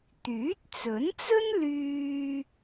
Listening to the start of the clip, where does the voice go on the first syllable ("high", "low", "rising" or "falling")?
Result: rising